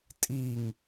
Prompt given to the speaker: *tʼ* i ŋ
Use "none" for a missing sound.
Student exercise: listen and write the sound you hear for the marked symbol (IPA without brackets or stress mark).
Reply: tʼ